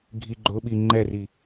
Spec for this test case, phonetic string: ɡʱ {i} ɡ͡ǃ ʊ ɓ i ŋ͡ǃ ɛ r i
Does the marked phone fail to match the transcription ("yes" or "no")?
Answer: no